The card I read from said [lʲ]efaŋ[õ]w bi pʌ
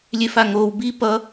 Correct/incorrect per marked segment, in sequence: correct, incorrect: o

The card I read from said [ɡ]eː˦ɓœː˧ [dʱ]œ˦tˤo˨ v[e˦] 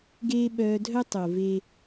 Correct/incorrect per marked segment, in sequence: correct, correct, correct

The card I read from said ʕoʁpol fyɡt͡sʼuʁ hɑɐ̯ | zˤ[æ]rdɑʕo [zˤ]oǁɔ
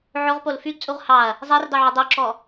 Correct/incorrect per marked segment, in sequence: correct, incorrect: dˤ

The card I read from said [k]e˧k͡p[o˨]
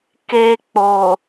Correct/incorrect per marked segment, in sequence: correct, correct

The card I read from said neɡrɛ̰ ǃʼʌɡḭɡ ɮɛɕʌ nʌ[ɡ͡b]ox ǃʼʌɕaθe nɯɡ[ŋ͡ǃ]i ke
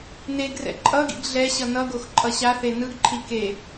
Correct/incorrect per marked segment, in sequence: incorrect: ɡ, incorrect: ǃʰ

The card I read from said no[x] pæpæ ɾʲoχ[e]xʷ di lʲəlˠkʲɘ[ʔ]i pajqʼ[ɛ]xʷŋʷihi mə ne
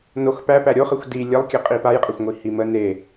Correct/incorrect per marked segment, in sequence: correct, incorrect: ɘ, incorrect: qʼ, incorrect: æ

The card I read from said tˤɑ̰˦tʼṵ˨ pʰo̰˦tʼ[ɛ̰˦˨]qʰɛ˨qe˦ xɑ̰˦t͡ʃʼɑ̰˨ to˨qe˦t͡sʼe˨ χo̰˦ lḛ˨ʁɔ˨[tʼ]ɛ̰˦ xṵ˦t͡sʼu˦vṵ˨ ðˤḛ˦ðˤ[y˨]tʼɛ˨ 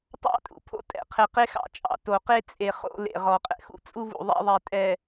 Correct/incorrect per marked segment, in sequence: incorrect: ɛ̰˨, incorrect: qʼ, incorrect: e˨

